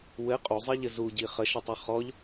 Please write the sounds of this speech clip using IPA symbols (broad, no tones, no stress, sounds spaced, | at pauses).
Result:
w ɘ qʼ u zˤ i ʎ ɘ z u ɟ i χ ə ʃ ə tˤ ɘ χ ɔ ʎ